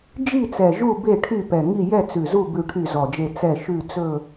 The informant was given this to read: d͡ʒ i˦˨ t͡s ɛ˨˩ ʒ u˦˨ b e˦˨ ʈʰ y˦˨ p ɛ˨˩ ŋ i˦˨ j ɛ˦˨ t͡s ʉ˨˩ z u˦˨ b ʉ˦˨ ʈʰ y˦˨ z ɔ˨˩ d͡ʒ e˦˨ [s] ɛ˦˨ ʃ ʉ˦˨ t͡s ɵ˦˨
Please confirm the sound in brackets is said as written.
no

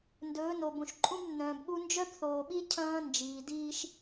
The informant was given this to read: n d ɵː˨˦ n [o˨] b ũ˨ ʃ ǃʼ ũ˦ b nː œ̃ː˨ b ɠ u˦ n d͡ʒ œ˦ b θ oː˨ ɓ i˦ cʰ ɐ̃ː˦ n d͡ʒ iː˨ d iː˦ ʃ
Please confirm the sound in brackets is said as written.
yes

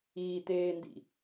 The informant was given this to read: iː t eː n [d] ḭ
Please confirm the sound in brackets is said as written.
yes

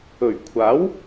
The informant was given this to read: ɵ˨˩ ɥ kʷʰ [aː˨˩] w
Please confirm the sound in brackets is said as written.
no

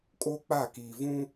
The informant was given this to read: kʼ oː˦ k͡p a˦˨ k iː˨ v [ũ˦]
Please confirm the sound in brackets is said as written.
yes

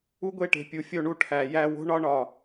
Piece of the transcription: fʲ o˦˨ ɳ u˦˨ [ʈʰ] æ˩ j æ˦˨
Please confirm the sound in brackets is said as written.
yes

